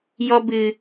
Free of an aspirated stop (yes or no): yes